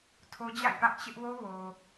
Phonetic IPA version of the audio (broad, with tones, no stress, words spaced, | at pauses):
tʰo˦d͡ʑa̰˦˨ɪ̯pä˦ʔ t͡ɕɪ˦ʔwo˦ wo˨